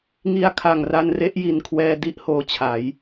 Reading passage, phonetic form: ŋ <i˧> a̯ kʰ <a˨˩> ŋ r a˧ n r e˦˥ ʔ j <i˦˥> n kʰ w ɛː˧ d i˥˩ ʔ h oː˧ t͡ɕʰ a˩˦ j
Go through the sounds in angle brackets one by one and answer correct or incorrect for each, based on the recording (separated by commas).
correct, correct, incorrect